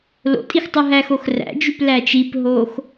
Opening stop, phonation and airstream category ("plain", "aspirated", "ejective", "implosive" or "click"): ejective